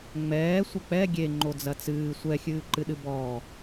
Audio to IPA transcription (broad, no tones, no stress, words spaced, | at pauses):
ŋ͡mɛː sʷɐk͡pɛ ɡʲeŋ͡ǃo d͡zɐt͡sɨː sʷɛxʲɨːǃɨɗɨ bɔː